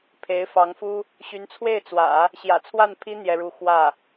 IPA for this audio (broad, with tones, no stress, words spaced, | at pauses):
pʰe˧˥ɪ̯fɑ˧˥ŋfu˥ | ɕy˧˥nt͡sʰwe˥˩ɪ̯t͡swä̰˨˩˦ | ɕjä̰˨˩t͡sʰwa˥˩npʰi˥ n̪jɛ˥ɻu˥˧ xwä˥˩